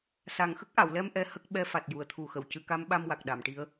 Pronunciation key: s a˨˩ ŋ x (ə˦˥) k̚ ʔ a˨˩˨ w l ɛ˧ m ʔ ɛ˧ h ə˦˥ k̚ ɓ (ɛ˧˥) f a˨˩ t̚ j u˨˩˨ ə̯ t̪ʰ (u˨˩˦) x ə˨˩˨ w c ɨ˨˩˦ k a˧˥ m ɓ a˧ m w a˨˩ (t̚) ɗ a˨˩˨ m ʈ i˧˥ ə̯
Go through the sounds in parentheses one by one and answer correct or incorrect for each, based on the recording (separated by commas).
correct, correct, incorrect, incorrect